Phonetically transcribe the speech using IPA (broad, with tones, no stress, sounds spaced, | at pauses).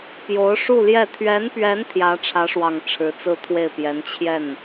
p j o˧˥ ʊ̯ ʂ u˥˧ l j ɛ˥˩ t̪ʰ ɥ ɛ˧˥ n p ɥ ɛ˧˥ n t̪ʰ j ä˧˥ ʈ͡ʂʰ ä˧˥ ʂ w ɑ˨˩ ŋ ʈ͡ʂʰ ɻ̩˧˥ t͡s ɹ̩˥˧ t̪ʰ w e˥˩ ɪ̯ p j ɛ˧˥ n t͡ɕʰ j ɛ˥˩ n